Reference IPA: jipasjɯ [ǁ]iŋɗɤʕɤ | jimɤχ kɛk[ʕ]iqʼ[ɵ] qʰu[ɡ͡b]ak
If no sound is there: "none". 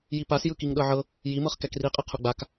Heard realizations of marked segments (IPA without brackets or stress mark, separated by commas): k, r, ɤ, ɡ͡b